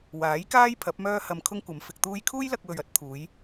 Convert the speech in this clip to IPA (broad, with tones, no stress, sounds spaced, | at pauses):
w aː˨˥ j k aː˥ j pʰ ɐ˨˥ p̚ m œː˥ h ɐ˧ m kʰ ʊ˥ ŋ kʷ ɐ˨˧ m f ɪ˧ k̚ t̪ uː˥ j kʰ uː˥ j l ɐ˧ k̚ w ɵ˨ ɥ ɐ˥ t̚ t̪ʰ uː˨˧ j